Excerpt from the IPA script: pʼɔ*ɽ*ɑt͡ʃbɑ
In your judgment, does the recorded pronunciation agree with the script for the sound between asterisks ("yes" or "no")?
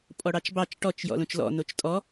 yes